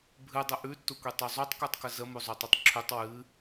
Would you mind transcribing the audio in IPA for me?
bʱɨdˤə ʔʉtːukʷitˤu zˤotˤkutˤkə zəmuzˤutˤutˤ ǁʰʉtˤ wɨ

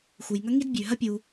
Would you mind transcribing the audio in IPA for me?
xu˩jŋɐ˥ ŋi˥dbʲʉ˩ ɦɐ˥pʲu˩

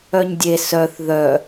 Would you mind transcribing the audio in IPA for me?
œɲdʲe sœθ ðœ

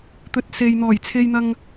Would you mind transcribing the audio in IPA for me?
t̪ɵ˨t̚se˨jn̪ɔː˨˩j t͡sʰe˧jn̪ɐ˧ŋ

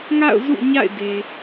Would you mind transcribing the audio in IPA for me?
ŋa̰˦˨ʊ̯ zṵ˦˨ɲa̰˦˨ɪ̯ de˨

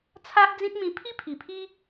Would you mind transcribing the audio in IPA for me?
t͡sʰa˦ʔd͡zĩ˦t̚mĩ˧ pʰi˦pʰi˨˩pʰi˦

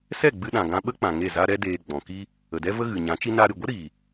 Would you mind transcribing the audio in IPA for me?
sɛ˦˨ɡ͡bɨ˧ ɗã˨ɡã˧ ɓə˦k͡pã˨ ŋe˦˨za˦ɾɛ˦ deː˧ɡ͡bɔ̃˨ki˦ | ə˨dɛ˦və˦ ɣɨ˨ɲã˨˦t͡ʃi˦ na˧ɾɨ˨ɡʷə˦ ɾi˨

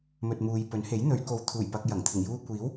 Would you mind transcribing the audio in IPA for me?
mɵ˨t̚muː˨j pɵ˨˥nhe˨˥j n̪ɵ˨˧ɥko˨wt̪ʰuː˨˩j pɐ˧k̚jɐ˨˩ŋt̪ʰɪ˨˩ŋ juː˧kʷiː˨˥w

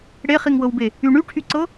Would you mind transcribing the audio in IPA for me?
ɽeχiŋwɤwbe | y ɳyʈʰyǀɤ

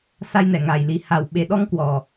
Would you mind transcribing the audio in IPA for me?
sa˧jnɛ˧˩ŋa˨˩j li˨˩ha˨˩w ɓe˨˩ɗɔ˧ŋ kwɔ˨˩

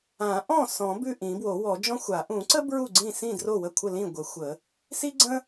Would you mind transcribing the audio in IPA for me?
ã˨˩˦ʔɔ̃˥˩ sɔ̃˨˩˦ bʉ˥˩ʔĩ˨˩˦bwo˨˩˦wɔ˨˩˦ d͡ʒɔ̃˥xʷa˨˩˦ ʔũ˨˩˦ǀə˥ bɹu˥˩ɡ͡ǀĩ˥˩sĩ˥˩ dro˥˩wə˥˩kʷʰə˥˩ lĩ˥˩ɡʷə˨˩˦ xʷə˨˩˦ | si˥ɡ͡ǀə̃˥

